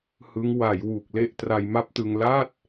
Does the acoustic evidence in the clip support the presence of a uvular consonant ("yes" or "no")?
no